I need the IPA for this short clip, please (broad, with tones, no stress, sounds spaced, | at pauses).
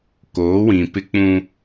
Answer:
k oː˨˦ w ĩ˨ p ɪ˦ k͡p ũ˦